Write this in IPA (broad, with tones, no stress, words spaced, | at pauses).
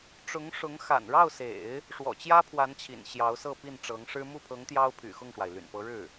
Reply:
ʈ͡ʂʊ˧˥ŋʂʊ˧˥ŋ xa̰˨˩nɻɑ˥˩ʊ̯sḛ˨˩˦ɪ̯ | ʂwɔ̰˨˩t͡ɕjä˥pʰwa˧˥nt͡ɕʰḭ˨˩n ɕjɑ˧˥ʊ̯sɤ˥˧ pi˥˩nʈ͡ʂɤ˧˥ŋʂɻ̩˥ mu˥˩pʰɤ˧˥ŋ t̪jɑ˥ʊ̯ pʰy̰˨˩xʊ˥˩ŋʂwa˩ɪ̯ ly̰˨˩npɤ˧˥ɻɻ̩˥˩